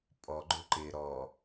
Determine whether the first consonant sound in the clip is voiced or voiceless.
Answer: voiceless